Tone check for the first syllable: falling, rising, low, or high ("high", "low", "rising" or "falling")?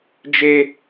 high